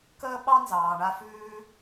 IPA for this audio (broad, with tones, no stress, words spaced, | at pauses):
kəː˥ɓɑ˥ nzɑː˩ɳa˧fʉː˧